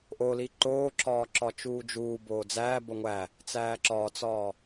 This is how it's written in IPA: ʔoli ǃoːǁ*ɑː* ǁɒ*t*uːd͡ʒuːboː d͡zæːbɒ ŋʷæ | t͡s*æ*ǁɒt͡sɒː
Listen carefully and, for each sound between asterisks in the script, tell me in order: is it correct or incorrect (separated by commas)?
incorrect, incorrect, incorrect